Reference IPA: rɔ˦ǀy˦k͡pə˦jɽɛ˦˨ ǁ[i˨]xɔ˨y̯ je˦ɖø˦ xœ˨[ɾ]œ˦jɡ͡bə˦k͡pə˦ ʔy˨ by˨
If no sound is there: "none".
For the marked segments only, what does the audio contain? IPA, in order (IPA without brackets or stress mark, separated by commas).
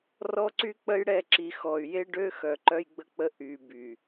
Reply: i˨, ǃ